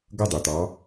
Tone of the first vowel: falling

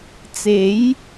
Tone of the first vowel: rising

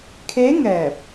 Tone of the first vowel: rising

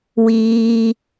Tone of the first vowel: low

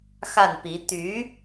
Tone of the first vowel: falling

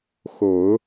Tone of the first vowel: low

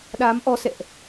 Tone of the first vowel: rising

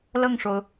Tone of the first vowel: falling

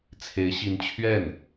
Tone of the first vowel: rising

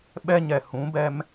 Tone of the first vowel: high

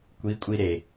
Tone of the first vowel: rising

